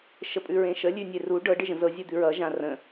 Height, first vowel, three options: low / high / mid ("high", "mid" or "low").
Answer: mid